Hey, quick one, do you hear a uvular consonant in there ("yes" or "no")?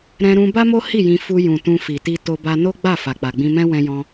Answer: no